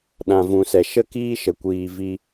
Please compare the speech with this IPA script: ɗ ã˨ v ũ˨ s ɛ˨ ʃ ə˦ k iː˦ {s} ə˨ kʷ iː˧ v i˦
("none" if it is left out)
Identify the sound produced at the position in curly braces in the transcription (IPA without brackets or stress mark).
ʃ